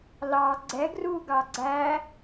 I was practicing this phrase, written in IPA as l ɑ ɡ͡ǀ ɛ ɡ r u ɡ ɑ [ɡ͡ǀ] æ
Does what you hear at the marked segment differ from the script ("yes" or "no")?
no